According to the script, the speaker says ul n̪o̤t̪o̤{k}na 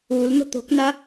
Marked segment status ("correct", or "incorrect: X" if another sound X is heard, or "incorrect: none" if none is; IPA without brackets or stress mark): correct